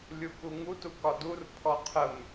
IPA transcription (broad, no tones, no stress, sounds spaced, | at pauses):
lʲ u k u ŋ u t u k ɒ d u r pʰ ɔ qʰ ə m